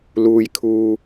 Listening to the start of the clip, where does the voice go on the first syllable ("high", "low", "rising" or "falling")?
high